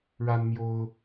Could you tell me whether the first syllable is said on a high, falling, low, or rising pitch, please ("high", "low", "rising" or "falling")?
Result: high